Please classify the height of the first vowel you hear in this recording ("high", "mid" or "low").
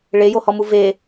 mid